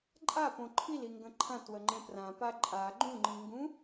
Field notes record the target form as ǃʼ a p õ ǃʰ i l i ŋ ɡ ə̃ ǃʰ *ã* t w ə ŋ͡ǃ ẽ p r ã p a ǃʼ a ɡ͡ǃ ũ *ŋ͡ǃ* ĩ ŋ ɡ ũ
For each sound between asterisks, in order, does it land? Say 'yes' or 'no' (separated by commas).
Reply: yes, yes